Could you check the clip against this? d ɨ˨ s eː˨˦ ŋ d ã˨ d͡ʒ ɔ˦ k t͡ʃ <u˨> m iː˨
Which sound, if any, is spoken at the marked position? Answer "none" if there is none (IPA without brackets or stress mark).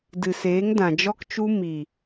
u˦